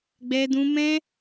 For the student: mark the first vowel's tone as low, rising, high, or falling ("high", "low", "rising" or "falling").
high